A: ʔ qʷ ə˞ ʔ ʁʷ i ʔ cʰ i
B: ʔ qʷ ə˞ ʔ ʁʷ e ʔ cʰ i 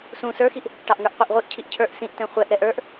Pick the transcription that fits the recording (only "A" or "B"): A